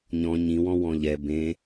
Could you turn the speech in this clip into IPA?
ɲɔ̃ ɲĩwɔ̃wɔ̃ ʎɛ bẽ

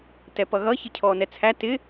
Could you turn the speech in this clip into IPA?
tɛpʌɣʌ çɪcʰɔːnɛt͡sʰæ tɪ

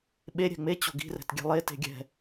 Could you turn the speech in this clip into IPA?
ɓe ɾʲɛ̤ŋ͡me t͡ɕo̤ɡi̤rɛ̤t ɡʲɛ̤lˠe te̤ɡʲɛ̤

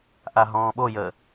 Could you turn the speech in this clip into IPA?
ʔaɦɔ̃ːɓo jə

